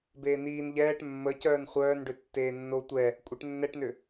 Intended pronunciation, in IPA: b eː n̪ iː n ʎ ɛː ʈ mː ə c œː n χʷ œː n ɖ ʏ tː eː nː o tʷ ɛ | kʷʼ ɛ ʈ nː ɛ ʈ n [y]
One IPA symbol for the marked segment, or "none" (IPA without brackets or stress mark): ʏ